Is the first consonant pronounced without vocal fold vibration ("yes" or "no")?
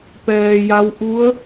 yes